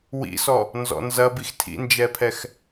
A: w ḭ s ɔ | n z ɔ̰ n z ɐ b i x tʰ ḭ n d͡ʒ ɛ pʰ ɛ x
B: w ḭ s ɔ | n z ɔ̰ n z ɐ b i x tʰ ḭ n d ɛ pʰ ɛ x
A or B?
A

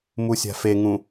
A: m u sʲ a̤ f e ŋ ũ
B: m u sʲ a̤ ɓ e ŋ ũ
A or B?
A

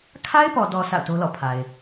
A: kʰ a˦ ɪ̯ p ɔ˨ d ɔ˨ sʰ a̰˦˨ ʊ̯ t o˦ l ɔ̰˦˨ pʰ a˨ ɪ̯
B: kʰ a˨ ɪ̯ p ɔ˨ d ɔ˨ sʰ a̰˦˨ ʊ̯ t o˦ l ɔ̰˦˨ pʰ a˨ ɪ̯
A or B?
A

